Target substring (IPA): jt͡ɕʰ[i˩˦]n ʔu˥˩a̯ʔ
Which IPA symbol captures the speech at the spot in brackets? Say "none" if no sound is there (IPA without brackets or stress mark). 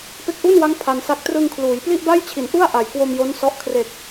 i˩˦